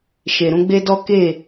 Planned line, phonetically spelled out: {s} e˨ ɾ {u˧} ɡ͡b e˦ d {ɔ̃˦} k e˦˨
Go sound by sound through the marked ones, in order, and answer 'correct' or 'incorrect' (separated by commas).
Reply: incorrect, incorrect, incorrect